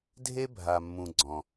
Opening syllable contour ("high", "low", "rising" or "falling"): high